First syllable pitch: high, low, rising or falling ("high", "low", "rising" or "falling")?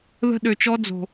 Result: high